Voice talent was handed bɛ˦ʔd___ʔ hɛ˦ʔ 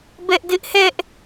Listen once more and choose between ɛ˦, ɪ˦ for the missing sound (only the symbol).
ɪ˦